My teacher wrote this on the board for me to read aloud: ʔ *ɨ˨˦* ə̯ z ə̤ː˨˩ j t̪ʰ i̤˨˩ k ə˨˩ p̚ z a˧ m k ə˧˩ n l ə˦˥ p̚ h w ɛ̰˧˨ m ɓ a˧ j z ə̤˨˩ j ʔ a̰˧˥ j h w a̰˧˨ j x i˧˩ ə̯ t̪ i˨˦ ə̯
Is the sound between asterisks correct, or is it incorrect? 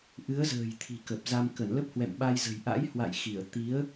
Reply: correct